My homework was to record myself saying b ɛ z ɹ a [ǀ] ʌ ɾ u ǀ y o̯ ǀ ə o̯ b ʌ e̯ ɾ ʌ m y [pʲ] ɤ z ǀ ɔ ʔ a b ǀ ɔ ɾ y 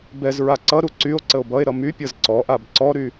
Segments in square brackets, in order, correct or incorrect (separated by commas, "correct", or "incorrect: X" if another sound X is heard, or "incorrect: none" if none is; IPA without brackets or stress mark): correct, correct